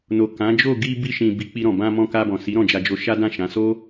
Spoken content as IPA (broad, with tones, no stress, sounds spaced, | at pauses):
n o˨ k ã˨˦ d͡ʒ o˦˨ ɡ i˧ b i˧ ʃ ĩ˨ b i˨˦ k͡p i˧ ɾ ɔ̃˨ b ã˧ m ɔ̃˧ k a˧ b ɔ̃˨ s i˨˦ ɾ ɔ̃˦˨ d͡ʒ a˧ d͡ʒ o˧ ʃ a˦ d ã˦˨ ʃ ã˨˦ s o˦